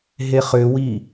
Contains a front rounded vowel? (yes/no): yes